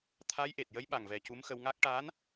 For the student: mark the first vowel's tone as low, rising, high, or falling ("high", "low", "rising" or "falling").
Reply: rising